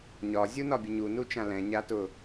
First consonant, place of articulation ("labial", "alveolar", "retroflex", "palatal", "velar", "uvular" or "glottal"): palatal